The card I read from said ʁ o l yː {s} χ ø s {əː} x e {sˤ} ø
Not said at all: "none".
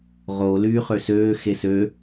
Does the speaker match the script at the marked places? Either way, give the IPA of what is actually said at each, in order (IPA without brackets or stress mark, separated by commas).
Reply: none, øː, s